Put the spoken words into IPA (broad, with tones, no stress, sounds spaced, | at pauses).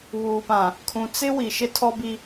β uː˨ p ã˨ | kʰ ũ˨ t͡s ɪ˦ w i˨ ʃ ɪ˦ tʰ ɔ˦ b i˦